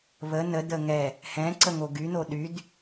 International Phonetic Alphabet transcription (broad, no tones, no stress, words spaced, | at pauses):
βə nədə ŋɛ | hɛ̃ǀə ŋoɡyno ɗyd